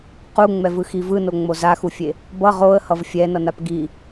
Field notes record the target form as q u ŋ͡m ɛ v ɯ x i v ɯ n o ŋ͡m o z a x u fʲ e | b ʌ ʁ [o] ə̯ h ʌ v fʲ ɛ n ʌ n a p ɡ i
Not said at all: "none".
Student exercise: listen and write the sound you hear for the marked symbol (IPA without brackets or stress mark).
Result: o